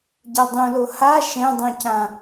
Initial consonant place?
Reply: palatal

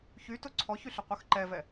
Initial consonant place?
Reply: palatal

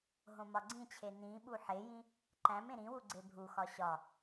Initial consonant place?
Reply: glottal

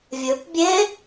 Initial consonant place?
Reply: labial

